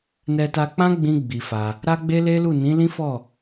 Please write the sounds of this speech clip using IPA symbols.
n ɛ˧ t a˧ k͡p ã˦ ɡ͡b ĩ˧ ɡ͡b i˧ f a˧ | ɾ a˦ ɡ͡b e˦ l e˦ l u˦˨ n ĩ˨˦ l ĩ˦ f ɔ˦˨

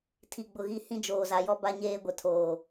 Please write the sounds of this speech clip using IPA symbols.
tʰ i˨ ɡ͡b ʊ˨ ɣ i˨ h ĩ˦ d͡ʒ oː˨ z a˨ j ɔ˦ b a˦ ɲ eː˦ ɡʷ ɛ˨ tʰ oː˨

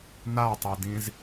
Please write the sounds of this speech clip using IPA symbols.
n a tˤ i d ĩ z

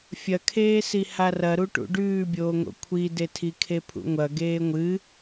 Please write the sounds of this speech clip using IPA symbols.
fʲ ɐ kʰ eː s i h a r ɐ ɾ u ʈ ṵ ɖ ʉː bʲ oː ŋ o̰ kʷʰ i d e tʰ i kʰ e pʰ ṵ ŋʷ ɐ ɡ eː ŋʷ ɨ

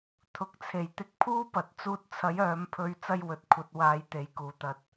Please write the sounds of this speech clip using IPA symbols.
t̪ʰ ʊ˨ k̚ t͡sʰ e˨˩ j t̪ ɪ˧ k̚ pʰ uː˥ p ɐ˨ t̚ t͡s uː˧ t̚ t͡sʰ ɐ˨˥ j œː˨˧ m pʰ ɵ˧ ɥ t͡s ɐ˥ j w ɵ˨ t̚ kʷʰ ɐ˨˥ t̚ w aː˨˥ j t̪ e˨ j k uː˨˩ t̪ ɐ˨ t̚

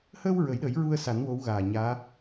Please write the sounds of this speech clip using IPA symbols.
h əː˧ w ɹ ə˨˩˦ j ɗ əː˨˩˦ j ɹ u˧ ə̯ s a˨˩˦ n w o˧˥ w ɣ aː˨˩ ɲ aː˧˥

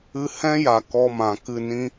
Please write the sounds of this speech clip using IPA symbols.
ɨ˧ h ɛ̃˦ j a˨ k ɔ˦ m ã˨ k ɨ˦˨ n ĩ˦

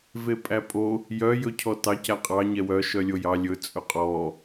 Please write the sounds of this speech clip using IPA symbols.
v e pʼ æ pʼ o | j œ j ɵ cʰ ɔ t ɑ c æ qʼ ɑ ɲ ɛ w œ ʃ œ lʲ o j ɑ lʲ ɵ t͡sʼ ɵ qʼ ɔ

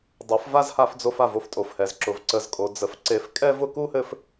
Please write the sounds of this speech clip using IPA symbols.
dˤ ɤ˨˦ f v a˦ z h a˧ f d͡z o˧ f a˦˨ v o˦ f tʼ o˨ f h ɛ˨ z ǁ ʊ˨ v ǀ ə˨ z kʼ o˨ d͡z ə˨ f ǀ e˨˦ f kʼ ɛ˦ v ʊ˧ k u˦ h ɘ˧ f

